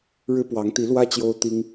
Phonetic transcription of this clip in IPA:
ɻ ɻ̩˥ p w ɑ˧˥ ŋ t̪ i˧˥ l w ä˥ t͡ɕ j o˥ ʊ̯ t̪ i˥ ŋ

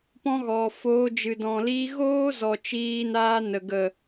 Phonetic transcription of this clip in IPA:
p ɔ̃˧ ɣ ɔ˨ f oː˧ d͡ʒ ɨ˨ d ɔ̃˨ l iː˧ ɣ oː˦ z ɔ˨ t͡ʃ iː˧ n aː˧ n ə˨ ɡ ə˨

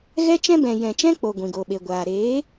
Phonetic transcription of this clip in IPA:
ɣ ɛ˦ t͡ʃ ɛ̃˦ b ɛ̃˨ j ɛ̃˨ t͡ʃ ɛ̃˦ k͡p o˨ ɡʷ ĩ˨ ɡ o˨ ɓ e˨ ɡʷ aː˨ ɾ eː˨˦

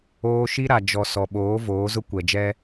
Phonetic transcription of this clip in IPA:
oː˦ ʃ i˦ ɾ a˨ d͡ʒ ɔ˨ s ɔ˨ ɓ oː˨˦ v oː˨˦ z ʊ˦ kʷ ɛ˨ d͡ʒ ɛ˦

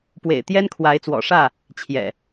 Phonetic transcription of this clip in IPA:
p w ḛ˨˩ ɪ̯ t̪ j ɛ˦ n kʰ w a˨˦ ɪ̯ t͡s w ɔ̰˨˩ ʂ ä˥˨ | t͡ɕʰ j ɛ̰˨˩

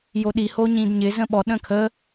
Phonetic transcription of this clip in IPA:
j o ɗ i h o ɲ ĩ d ɲ ɪ z ə̃ ɓ ɔ ɗ ə̃ kʰ ə

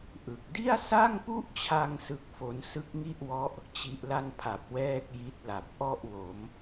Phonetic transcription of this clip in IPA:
ʔ ɯ˨˩ k̚ d i˥˩ a̯ s a˥˩ ŋ p u˥˩ ʔ t͡ɕʰ a˧ ŋ s ɯ˦˥ k̚ f o˦˥ n s ɯ˦˥ k̚ ŋ i˥˩ ʔ w ɔ˦˥ ʔ | t͡ɕ i˦˥ ʔ l a˥˩ n pʰ a˨˩ p̚ w ɛː˥˩ k̚ j i˦˥ t̚ l a˨˩ p̚ ʔ ɔ˥˩ ʔ w o˩˦ m

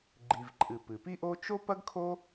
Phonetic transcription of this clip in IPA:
ɡ͡ǃ i˩ v ǃʼ ɨ˩ p ɨ˩ p i˥ ʔ o˥ t͡ʃ o˥ p ɐ˥ ɡ kʰ o˥

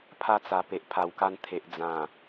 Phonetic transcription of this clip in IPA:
pʰ a˧ t͡s a˨˩ p e˨ ʔ pʰ a˨˩ w k a˧ n t̪ʰ e˨ ʔ d͡z ã˨˩

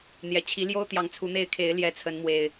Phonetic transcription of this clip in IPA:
n̪ j ɛ˨˩ t͡ɕʰ i˨˦ l j o˦ ʊ̯ t̪ j ɑ˨˦ ŋ t͡sʰ u˨˦ n̪ e˥˨ ɪ̯ kʰ e˨˦ ɪ̯ l j ɛ˨˦ t͡sʰ ə˨˦ n m w e˨˩ ɪ̯

